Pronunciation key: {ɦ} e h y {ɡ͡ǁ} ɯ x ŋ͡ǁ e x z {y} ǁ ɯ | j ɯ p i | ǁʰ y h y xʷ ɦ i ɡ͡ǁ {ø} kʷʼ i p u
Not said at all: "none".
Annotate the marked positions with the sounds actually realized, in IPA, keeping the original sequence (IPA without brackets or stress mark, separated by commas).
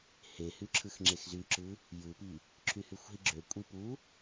h, ǁʰ, y, ø